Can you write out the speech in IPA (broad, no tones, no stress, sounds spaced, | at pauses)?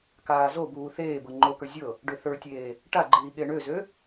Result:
k aː z o b uː θ eː b ɤ ŋ͡ǃ o k ə˞ zʲ ɤ | ɖ ø θ ə˞ tʲ eː | ʈ a ɡ͡ǃ iː ɠ e ɳ ø z ø